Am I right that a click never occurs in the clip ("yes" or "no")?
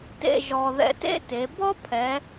yes